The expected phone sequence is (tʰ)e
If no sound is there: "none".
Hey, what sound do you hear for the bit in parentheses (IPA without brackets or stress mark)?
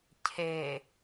cʰ